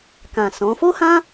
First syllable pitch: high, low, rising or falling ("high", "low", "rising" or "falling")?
low